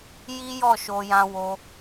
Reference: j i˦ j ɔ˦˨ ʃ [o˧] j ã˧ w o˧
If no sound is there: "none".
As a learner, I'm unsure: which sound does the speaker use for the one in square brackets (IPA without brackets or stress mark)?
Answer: o˧